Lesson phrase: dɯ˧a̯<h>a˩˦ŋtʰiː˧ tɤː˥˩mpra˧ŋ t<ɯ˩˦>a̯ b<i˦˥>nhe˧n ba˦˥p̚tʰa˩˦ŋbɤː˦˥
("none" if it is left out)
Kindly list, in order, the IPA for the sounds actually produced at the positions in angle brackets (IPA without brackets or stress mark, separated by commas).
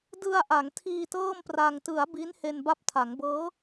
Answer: ʔ, ɯ˩˦, i˦˥